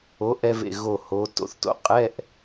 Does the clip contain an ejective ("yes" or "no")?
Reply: yes